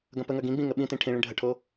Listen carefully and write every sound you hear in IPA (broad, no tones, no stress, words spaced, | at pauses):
ɡɐ̃pəŋɐ ɡĩɡ͡bĩ ŋəɓĩtĩ ʈʰĩɭĩ ɖʱəʈʰo